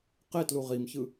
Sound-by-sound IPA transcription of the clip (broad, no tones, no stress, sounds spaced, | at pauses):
q e t l u ʁ i m ç ɯ